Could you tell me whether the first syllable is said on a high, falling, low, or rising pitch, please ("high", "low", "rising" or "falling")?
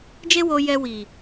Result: high